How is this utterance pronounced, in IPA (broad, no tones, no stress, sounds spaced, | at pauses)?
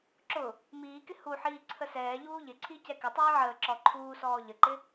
ǁ ʊ | m iː k ɪ h u ħ iː ǀʰ ə s ɛː ʎ uː ʎ ɪ ǀʰ i c ɛ k ɪ tˤ iː ʕ əː ǁ ɔ ǃʰ uː s ɔː ʎ ə ǃ ɪ